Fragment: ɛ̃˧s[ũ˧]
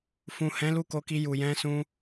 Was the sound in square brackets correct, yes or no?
yes